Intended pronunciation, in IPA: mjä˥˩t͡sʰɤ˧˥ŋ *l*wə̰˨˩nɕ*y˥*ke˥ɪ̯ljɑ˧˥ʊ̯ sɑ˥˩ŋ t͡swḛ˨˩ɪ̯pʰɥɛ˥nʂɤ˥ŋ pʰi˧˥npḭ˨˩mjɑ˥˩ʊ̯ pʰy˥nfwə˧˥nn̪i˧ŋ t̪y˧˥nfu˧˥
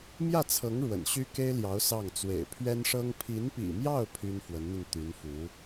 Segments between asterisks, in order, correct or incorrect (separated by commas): incorrect, correct